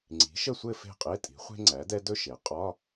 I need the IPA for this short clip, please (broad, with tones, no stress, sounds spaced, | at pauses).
ŋ͡ǀ i̤˩˥ ʃ ə˥˨ sʷ ɘ˥˨ f e̤˥˨ qʼ e˧˥˧ tʼ i̤˩˥ χʷ e̤˥ ŋ͡ǀ æ˩˥ d ɛ˥ d ɵ˥ ʃ e˩˥ qʼ ɒ˧˥˧